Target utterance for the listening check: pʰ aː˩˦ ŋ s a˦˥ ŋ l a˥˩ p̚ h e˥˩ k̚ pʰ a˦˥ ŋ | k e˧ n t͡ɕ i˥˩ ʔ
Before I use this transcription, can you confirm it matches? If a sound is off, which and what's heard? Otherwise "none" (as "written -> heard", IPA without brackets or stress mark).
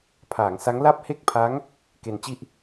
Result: none